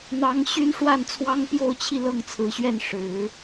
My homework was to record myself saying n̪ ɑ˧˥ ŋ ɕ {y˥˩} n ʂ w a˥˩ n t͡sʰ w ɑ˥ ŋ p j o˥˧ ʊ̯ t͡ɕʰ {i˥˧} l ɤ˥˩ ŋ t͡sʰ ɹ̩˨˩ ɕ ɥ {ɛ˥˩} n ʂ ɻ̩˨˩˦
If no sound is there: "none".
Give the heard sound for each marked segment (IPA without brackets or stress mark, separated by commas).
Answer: y˥, i˥˧, ɛ˥˩